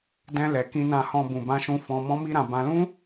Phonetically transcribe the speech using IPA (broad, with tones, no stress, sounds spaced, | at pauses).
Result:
d ɛ̃˧ l ɛ˨ k ĩ˧ n ã˧ h ɔ̃˧ b ũ˨ b ã˧ ʃ ũ˧ f ɔ̃˧ m ɔ̃˦ m i˦ ɾ ã˧ b ã˧ l ũ˦